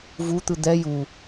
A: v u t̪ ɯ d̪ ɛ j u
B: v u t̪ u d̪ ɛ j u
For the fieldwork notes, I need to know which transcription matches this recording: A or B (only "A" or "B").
A